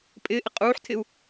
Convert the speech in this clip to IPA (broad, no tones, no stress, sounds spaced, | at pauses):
pʼ ɪː ʔ ɪ qʼ uː ħ tʰ ɪ u̯